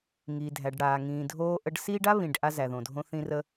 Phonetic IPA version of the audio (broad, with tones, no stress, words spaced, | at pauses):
ŋiː˩dʱæ˩ɖɽaː˩ ŋĩː˩dʱoː˧ʔə˧ɖsiː˥ɖ a˥βĩ˩ɖ ʔa˧zæ˩ðõ˩dʱõ˧ θĩ˧rə˧